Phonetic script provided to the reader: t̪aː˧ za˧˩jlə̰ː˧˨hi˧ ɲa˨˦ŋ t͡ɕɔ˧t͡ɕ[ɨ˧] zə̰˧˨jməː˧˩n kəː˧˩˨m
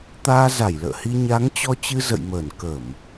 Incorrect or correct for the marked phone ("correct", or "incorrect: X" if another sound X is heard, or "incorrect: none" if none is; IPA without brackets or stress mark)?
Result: correct